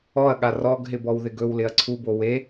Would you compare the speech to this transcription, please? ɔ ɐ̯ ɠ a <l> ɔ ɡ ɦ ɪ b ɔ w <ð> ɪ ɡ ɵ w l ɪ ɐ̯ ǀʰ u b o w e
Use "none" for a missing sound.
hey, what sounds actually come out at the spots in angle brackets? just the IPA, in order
r, ð

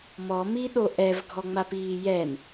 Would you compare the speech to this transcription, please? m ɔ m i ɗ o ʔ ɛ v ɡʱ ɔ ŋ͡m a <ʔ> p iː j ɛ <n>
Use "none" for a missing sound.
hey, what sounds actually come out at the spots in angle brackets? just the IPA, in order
none, n

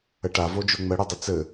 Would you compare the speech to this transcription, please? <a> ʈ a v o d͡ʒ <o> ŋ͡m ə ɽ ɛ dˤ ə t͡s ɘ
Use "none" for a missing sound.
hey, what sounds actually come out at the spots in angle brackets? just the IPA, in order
ə, o

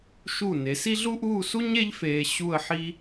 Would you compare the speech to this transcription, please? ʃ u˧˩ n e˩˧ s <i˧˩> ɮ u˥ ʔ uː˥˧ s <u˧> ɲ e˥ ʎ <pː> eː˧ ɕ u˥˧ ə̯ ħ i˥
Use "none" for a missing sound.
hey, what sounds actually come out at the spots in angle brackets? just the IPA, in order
i˥, u˥, f

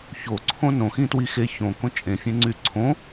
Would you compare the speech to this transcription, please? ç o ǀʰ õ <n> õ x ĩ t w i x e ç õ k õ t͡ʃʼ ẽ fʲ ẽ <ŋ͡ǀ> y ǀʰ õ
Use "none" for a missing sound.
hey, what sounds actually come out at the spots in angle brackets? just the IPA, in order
n, ŋ͡ǀ

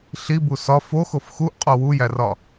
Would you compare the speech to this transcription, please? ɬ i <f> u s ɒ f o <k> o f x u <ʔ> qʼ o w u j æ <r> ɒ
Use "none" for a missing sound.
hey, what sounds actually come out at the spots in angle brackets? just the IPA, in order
b, x, ʔ, r

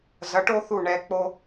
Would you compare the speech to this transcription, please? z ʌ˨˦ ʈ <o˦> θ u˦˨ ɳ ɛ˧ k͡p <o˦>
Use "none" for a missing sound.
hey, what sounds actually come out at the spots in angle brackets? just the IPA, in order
o˦, o˦

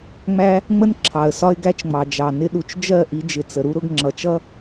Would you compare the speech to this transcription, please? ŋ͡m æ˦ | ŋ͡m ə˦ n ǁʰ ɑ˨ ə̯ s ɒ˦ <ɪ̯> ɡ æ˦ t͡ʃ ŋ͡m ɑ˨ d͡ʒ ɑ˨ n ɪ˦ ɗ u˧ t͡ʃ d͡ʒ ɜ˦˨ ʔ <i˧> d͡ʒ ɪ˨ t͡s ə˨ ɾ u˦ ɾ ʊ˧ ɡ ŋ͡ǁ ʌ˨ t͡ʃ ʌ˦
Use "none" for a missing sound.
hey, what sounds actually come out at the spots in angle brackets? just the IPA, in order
ɪ̯, i˧

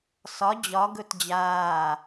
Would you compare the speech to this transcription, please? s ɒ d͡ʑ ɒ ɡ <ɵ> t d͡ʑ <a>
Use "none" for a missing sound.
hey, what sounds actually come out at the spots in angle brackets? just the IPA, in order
ɵ, aː

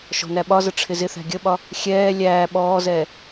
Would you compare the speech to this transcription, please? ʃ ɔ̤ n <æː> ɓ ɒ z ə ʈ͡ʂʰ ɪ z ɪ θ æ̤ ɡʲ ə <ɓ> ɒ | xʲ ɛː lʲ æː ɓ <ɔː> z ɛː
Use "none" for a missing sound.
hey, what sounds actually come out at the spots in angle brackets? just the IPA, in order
æ, ɓ, ɔː

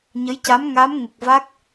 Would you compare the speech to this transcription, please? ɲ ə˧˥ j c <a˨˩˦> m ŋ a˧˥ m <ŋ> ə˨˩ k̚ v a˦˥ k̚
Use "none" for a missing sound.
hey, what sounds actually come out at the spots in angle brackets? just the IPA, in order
a˧˥, ŋ

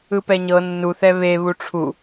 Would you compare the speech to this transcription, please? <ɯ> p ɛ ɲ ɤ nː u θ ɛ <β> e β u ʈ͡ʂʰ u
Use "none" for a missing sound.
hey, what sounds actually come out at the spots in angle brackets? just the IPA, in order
ɯ, β

